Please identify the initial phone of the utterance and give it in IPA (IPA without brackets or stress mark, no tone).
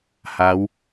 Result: h